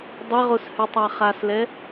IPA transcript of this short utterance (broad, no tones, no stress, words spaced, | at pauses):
dˤɘʁos hytˤaχaslɛ